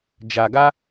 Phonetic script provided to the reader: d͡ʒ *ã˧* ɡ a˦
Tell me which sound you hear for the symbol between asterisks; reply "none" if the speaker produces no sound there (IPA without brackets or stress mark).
a˧